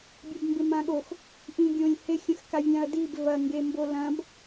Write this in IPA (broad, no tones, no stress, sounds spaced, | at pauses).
bʲ a b m b ɪ m ã ɠ o x | ʔ ĩ ɡʲ õ lʲ h ɪ xʲ ə̃ x k a vʲ ã ɐ̯ d i b v ɐ ŋ ɡ e m b o l ɐ̃ b